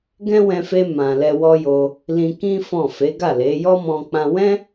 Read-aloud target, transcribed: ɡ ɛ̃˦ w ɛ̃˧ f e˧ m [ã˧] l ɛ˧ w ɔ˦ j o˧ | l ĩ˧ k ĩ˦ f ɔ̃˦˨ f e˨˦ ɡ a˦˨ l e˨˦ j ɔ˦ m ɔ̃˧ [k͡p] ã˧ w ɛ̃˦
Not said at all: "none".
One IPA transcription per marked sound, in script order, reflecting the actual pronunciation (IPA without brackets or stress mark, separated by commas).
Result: ã˨, k͡p